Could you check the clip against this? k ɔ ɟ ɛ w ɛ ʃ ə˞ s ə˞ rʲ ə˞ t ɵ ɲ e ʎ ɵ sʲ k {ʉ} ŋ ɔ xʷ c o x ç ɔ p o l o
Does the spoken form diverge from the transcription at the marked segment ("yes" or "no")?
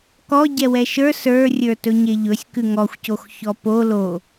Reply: no